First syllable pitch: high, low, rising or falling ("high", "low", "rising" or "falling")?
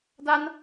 high